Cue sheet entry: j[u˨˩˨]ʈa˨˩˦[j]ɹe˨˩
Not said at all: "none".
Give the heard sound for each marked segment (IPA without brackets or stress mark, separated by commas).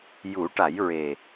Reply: u˨˩˦, j